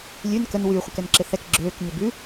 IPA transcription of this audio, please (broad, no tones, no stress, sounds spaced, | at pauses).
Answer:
lʲ ʉ n k ə n w y χʷ ɪ k ɛ n ǁ ɪ θ ɛ k ɡ͡ǁ øː k ɲ ɪ b ʉ